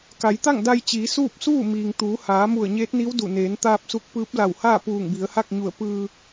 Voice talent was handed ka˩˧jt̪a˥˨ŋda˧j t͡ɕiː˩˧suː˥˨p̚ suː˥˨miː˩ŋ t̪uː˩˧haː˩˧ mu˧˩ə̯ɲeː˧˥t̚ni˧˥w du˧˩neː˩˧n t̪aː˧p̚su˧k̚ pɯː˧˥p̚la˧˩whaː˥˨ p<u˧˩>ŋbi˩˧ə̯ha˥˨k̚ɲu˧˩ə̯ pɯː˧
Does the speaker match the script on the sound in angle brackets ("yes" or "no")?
no